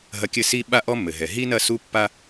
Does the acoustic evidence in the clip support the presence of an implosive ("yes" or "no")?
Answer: yes